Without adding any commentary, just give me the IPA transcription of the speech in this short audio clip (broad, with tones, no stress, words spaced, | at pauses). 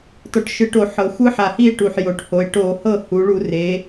tɔ˨˩ʈʃɯ˨˩ʈo˧˩˧ ħɤ˩˧xʷɯ˦˥ħa˨˩hi˥˨e̯ ʈu˨˩ħjo˩˧ʈho˩˧e̯ ʈo˧˩˧hɤ˥˨ hu˩˧ɭu˧˩˧re˩˧